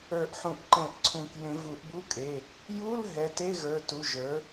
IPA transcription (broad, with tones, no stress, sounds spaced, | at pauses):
ə˞˨˩˦ ʔ ħ ũ˨˩˦ ʔ ǃ ɛ̃˨˩˦ ʔ ǀʰ ũ˨˩˦ k j ẽ˨˩˦ v u˨˩˦ ʔ b u˧˥˧ kʼ e˩˧˩ | j u˧˥˧ l ɦ ɛ˩˧˩ t e˧˥˧ ɣ ə˞˩˧˩ t u˩˧˩ ʒ ə˞˩˥